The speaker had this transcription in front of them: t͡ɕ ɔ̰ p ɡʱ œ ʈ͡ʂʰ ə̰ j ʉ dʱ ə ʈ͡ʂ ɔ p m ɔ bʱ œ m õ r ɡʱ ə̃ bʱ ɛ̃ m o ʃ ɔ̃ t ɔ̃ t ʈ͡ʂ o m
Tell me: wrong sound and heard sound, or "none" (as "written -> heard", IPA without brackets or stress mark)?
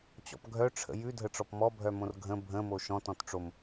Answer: ɛ̃ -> ə̃